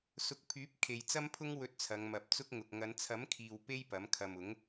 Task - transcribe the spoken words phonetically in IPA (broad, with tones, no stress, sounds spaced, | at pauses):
s ʊ˨˥ k̚ pʰ yː˨˥ p̚ kʰ e˨ j t͡s ɐ˥ m pʰ ʊ˥ ŋ w ɵ˧ t̚ t͡sʰ ɐ˨˧ ŋ m ɐ˨ p̚ t͡s ʊ˥ k̚ ŋ ʊ˨ k̚ ŋ ɐ˨˧ n t͡sʰ ɐ˨˥ m kʰ iː˨ w p e˥ j p ɐ˨˥ m kʰ ɐ˨ m ʊ˨˥ ŋ